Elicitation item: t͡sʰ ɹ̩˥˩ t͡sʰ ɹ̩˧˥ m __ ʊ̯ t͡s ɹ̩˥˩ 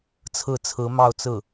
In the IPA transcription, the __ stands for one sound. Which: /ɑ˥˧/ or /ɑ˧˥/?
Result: ɑ˥˧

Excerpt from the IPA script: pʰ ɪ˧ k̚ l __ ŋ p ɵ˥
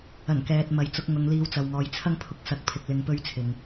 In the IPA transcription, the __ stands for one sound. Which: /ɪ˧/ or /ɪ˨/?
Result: ɪ˧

